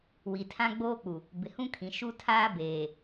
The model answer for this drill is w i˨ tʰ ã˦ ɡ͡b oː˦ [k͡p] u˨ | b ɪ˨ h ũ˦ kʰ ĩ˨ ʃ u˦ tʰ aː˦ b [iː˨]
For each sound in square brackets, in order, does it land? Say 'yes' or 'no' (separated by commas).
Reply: yes, no